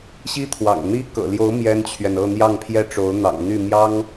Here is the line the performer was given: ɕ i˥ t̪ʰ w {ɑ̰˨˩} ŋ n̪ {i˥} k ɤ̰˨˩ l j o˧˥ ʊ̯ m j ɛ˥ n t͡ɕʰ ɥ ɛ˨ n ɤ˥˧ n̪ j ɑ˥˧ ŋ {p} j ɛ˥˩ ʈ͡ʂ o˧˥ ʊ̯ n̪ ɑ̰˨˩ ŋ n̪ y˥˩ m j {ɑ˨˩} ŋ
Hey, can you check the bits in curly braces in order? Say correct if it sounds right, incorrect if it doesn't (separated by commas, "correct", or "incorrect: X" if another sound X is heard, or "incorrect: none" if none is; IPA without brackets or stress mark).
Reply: correct, correct, incorrect: pʰ, incorrect: ɑ˥